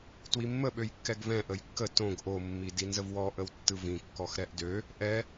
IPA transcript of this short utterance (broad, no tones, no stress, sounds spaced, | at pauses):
t w i mː ə ɓ ø j kː ɛ ɡ v ɛ̃ ʔ ə j kː ə t õ ɡ ʔ o mː i d i n z ə v w ɔ ʔ ə w tː ɯ v ĩ kː ɔ x ɾ ɛ ʔ d ø | ʔ ɛ